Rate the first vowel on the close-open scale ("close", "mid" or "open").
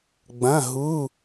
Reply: open